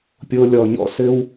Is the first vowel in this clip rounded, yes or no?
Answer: yes